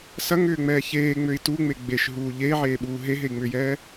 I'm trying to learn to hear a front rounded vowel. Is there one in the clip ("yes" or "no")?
yes